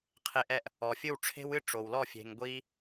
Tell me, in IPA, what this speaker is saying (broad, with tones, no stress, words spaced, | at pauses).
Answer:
qʰe˧ʔɛ˧ʔ | ɔ˩fʲɨ˥˩wʈ͡ʂʰe̤˥wɨ˥ ʈ͡ʂo˩wlɔ˥˩ fʲe̤˩ŋ ɡʷi˧